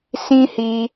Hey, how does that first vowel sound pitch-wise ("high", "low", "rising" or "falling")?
high